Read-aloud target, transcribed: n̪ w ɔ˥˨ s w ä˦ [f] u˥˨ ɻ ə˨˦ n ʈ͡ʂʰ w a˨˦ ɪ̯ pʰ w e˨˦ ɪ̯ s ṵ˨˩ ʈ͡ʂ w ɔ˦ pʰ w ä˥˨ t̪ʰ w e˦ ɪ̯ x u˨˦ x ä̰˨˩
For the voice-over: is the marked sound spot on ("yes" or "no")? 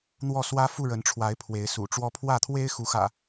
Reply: yes